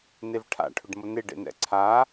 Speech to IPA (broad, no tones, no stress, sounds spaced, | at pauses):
n e v ʈʰ a̰ ʈʰ ʊ ɖ m ʊ n e ɖ ḛ n ɛ̰ ǀʰ a